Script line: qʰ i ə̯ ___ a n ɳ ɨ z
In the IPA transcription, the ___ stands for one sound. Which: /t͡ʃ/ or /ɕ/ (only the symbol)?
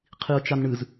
t͡ʃ